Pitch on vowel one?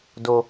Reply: low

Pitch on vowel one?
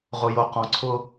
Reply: low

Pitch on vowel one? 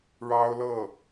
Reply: high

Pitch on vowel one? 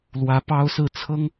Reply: rising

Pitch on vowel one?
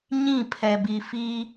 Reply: falling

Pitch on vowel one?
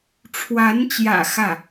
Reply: rising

